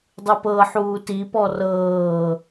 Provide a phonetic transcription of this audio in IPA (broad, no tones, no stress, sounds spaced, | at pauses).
dˤ ɯ p ɤ ħ uː t i p ɔ r ɤː